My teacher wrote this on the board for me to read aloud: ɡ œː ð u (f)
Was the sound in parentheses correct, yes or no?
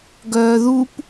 no